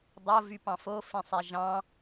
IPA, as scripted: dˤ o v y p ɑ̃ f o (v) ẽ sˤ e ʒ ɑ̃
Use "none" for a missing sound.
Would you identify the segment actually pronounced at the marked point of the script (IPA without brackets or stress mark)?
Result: f